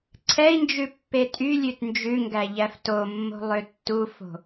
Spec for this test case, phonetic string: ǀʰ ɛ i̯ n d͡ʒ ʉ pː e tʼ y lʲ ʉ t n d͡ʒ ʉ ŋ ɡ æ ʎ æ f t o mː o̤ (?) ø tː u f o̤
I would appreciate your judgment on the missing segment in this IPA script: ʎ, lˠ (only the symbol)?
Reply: lˠ